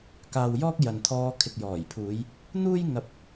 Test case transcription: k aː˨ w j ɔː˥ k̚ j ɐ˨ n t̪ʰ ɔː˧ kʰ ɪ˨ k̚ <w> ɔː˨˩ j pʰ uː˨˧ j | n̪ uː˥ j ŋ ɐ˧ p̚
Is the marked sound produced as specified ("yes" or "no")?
no